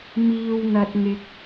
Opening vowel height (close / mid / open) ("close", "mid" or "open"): close